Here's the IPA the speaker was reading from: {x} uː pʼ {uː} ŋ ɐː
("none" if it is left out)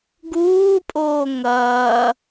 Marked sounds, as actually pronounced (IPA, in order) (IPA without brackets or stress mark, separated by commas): ɡ, oː